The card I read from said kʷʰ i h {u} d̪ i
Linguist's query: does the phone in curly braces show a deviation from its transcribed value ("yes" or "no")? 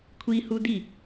no